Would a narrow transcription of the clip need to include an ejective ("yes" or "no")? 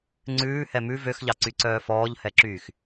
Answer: no